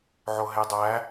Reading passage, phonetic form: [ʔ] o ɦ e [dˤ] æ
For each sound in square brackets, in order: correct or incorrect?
incorrect: ʕ, correct

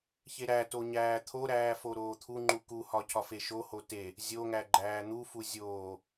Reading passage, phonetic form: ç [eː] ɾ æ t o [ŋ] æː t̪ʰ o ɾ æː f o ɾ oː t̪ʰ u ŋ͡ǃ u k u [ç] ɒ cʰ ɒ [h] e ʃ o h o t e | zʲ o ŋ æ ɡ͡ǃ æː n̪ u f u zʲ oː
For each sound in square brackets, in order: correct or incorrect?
incorrect: e, incorrect: ɲ, incorrect: h, incorrect: f

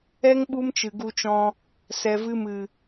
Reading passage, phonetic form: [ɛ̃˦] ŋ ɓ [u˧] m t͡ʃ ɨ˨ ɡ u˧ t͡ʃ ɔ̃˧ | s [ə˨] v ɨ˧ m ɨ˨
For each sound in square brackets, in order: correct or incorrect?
incorrect: ɛ˦, incorrect: u˦, incorrect: ɛ˨

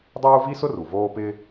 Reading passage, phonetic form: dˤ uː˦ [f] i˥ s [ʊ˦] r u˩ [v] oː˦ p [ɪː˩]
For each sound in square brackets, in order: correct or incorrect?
incorrect: v, correct, correct, incorrect: ɪː˦

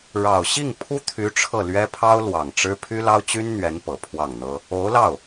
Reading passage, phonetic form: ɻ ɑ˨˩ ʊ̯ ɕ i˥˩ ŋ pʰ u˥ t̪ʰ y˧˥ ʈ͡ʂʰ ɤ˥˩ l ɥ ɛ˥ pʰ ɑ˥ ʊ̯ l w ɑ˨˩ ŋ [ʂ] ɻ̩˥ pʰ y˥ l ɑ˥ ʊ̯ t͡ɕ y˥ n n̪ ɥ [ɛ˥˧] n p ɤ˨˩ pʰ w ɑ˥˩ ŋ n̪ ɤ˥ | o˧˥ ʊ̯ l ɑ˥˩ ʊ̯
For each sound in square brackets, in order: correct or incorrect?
incorrect: ʈ͡ʂ, incorrect: ɛ˧˥

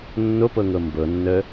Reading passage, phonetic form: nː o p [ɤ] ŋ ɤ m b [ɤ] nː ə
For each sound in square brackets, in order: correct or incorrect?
correct, correct

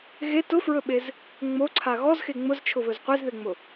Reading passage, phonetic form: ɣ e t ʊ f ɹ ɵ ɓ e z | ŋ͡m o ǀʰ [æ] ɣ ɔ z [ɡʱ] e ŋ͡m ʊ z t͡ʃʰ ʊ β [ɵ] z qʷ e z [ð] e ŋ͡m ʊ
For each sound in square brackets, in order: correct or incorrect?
incorrect: a, incorrect: x, correct, correct

